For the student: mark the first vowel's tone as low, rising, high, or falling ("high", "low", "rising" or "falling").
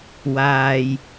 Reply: low